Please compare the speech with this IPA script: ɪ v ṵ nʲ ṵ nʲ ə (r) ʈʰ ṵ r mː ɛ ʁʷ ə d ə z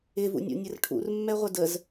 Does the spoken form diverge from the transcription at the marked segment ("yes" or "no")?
no